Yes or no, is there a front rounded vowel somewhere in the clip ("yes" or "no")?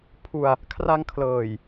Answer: no